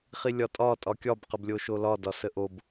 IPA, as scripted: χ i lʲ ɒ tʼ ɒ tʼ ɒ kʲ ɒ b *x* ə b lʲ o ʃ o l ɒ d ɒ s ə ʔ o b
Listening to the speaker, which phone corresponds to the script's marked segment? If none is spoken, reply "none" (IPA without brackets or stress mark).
q